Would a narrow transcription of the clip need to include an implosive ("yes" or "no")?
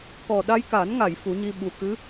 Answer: yes